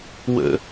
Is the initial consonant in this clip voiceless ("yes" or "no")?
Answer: no